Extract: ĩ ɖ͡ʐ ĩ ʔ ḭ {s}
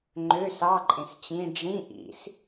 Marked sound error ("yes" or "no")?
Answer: no